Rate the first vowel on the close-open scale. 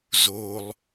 mid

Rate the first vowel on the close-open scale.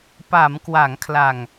open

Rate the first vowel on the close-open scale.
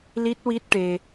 close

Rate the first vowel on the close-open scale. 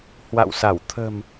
open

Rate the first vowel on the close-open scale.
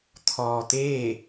mid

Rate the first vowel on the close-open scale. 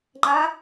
open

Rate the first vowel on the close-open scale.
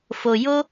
mid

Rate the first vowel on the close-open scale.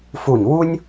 close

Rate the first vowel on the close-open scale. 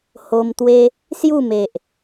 mid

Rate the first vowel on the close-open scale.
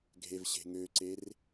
mid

